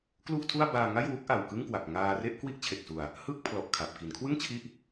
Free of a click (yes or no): yes